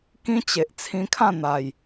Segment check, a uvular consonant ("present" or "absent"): absent